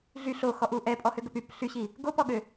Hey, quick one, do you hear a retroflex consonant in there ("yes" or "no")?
no